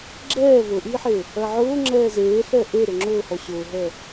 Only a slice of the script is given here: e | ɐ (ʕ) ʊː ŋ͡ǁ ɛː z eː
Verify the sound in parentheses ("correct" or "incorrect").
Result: correct